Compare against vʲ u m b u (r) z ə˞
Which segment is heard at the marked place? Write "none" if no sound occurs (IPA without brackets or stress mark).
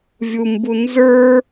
n